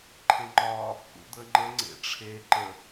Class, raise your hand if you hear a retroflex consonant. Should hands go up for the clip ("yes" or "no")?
yes